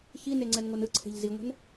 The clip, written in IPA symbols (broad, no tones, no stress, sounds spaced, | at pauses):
ç i n e ŋ͡ǀ ɛ n ŋ o n ɯ ǀʰ e̤ ʎ z i ŋʷ ɛ̤ n